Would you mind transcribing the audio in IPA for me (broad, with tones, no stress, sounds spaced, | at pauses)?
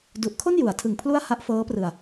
d u˨˩ ʔ kʰ o˥˩ n j u˩˦ a̯ tʰ ɯ˨˩ ŋ pʰ l u˥˩ a̯ h a˦˥ ʔ f ɤː˦˥ p r ɯ˨˩ a̯